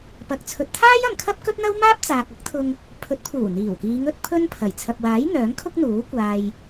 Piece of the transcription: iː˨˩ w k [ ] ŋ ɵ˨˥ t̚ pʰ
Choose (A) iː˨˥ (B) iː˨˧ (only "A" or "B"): B